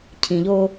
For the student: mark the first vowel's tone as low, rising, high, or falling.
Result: low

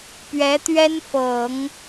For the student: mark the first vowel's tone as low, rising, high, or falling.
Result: rising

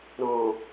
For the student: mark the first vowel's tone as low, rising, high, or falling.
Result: low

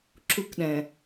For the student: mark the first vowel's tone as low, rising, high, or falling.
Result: high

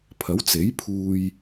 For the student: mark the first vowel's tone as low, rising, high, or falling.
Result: rising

